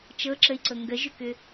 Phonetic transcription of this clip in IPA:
t͡ʃɤǁəi̯ǀɤ ŋɡəʒʏkʏ

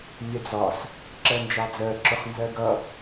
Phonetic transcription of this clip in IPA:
nʲɛd͡zɒs | ǁɜnd͡ʒɑd͡zɜ ǁʊχnzɜɡʌ

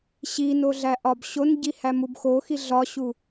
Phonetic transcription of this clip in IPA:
ɕino ɮæʔɒbɕonɟi hæmubxoxi ɮɒɕu

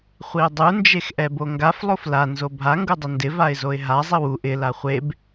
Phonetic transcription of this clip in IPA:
χʷiʊ̯dˤu nd͡ʒexʔɛboŋɡaf lˠofla nzobʱa ŋɡudˤʊndɪ vaɪ̯zoɪ̯ɦa zˤiwu ʔɪ laχʷeb

